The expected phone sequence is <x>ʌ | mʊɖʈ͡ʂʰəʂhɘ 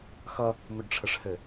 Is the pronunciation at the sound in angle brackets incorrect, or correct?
correct